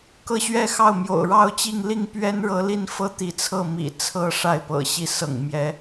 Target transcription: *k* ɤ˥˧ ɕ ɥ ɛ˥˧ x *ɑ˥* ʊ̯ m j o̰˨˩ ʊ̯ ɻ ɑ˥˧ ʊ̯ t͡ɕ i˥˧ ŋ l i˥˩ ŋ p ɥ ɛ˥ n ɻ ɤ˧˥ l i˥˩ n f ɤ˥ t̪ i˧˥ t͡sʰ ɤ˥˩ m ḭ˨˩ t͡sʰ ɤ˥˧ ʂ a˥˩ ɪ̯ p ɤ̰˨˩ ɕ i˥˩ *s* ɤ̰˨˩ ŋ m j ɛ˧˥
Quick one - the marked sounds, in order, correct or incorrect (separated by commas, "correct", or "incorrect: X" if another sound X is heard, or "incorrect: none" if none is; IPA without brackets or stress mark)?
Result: correct, incorrect: ɑ˥˩, correct